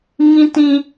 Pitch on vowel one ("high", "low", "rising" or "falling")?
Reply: high